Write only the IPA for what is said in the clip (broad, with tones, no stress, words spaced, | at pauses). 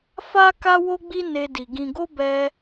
fa˦ ka˦wo˦ɡ͡bi˦ ne˦di˧ ɡĩ˧ɡo˦ bɛ˦